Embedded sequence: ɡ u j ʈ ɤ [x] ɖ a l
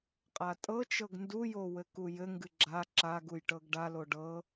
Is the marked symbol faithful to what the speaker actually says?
no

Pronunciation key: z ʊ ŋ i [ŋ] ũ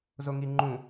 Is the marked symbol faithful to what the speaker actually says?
no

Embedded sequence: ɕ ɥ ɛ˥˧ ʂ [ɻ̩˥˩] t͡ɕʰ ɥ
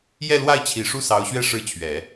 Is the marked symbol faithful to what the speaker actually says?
yes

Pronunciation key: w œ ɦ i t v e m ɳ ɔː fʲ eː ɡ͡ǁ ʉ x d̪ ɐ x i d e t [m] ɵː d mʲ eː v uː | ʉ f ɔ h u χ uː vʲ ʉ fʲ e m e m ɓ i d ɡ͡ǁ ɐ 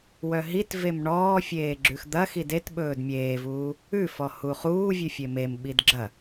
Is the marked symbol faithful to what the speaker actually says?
no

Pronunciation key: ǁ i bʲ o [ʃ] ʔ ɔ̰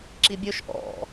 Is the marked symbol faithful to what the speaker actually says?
yes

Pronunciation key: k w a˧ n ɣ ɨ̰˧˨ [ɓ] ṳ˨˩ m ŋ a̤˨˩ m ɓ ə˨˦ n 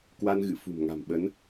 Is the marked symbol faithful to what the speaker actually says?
no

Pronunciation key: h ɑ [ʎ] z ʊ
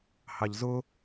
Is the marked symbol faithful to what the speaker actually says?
yes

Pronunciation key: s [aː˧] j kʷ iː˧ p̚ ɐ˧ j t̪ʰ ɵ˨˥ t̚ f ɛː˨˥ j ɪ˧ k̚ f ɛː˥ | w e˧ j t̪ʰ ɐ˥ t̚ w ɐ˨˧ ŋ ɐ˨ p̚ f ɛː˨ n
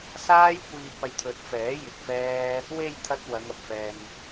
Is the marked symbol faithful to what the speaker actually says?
no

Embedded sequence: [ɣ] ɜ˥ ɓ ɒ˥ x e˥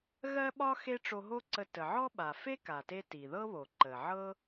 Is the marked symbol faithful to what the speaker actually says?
yes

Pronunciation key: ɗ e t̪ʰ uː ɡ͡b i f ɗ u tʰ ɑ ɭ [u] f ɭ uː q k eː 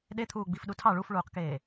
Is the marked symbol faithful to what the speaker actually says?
yes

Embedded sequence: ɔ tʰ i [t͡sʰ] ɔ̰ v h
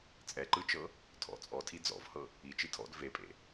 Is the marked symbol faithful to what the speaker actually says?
no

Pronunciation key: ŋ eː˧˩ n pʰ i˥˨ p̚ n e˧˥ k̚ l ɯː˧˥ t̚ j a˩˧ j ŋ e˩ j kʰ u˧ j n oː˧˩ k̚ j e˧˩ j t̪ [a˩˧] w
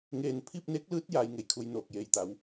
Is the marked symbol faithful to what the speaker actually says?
yes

